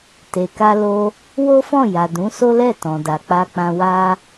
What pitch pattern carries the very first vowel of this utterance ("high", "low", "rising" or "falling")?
low